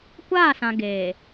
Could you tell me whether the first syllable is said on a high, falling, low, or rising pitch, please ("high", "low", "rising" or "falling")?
falling